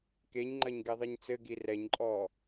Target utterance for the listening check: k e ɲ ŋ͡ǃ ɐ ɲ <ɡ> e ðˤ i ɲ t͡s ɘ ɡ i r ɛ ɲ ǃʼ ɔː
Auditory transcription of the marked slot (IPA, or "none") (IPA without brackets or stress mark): ɡ